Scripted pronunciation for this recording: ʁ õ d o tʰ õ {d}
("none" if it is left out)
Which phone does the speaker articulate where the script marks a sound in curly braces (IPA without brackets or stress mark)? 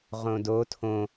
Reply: none